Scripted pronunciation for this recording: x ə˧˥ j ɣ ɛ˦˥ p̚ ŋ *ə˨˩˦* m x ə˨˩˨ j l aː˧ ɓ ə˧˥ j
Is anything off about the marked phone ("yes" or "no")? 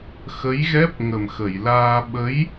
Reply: yes